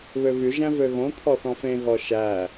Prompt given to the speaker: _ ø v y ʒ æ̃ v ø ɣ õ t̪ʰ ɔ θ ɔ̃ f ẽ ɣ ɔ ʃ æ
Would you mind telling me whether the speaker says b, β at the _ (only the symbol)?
β